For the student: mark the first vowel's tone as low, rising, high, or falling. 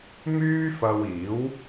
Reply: high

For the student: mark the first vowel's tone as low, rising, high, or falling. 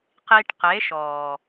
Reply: low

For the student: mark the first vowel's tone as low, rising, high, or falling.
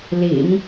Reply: low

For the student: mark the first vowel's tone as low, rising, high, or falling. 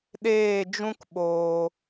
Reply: falling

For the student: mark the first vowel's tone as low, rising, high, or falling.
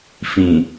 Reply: low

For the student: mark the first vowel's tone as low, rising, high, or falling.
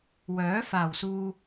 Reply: rising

